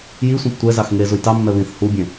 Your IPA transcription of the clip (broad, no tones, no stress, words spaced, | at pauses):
ji sʷɛ̃ptʷɛzɑx ŋe zujtɑmːɛ βĩθ hubʲẽ